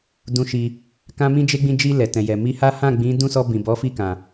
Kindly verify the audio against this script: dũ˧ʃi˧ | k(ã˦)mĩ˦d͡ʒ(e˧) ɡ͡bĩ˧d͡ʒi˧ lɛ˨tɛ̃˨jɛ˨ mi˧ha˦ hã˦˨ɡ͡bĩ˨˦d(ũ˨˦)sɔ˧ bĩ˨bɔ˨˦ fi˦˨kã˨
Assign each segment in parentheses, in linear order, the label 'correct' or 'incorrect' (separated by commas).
correct, incorrect, incorrect